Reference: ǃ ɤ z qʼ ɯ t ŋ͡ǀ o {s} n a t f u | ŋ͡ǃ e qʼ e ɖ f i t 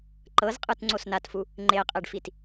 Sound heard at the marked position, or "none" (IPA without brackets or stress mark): s